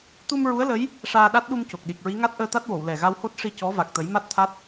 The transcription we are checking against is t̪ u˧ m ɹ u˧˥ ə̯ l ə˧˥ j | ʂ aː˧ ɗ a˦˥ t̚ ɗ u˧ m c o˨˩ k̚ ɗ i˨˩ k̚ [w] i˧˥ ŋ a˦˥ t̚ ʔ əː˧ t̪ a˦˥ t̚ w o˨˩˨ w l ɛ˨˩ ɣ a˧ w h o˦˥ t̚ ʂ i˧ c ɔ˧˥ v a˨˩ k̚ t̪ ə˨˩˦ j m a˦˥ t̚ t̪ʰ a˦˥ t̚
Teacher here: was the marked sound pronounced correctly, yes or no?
no